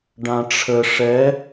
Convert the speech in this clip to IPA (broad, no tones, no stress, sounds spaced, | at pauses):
ɖ ã ʈ͡ʂʰ ə ʂ ɛ